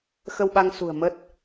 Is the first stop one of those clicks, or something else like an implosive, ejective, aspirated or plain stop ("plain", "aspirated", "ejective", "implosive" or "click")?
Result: implosive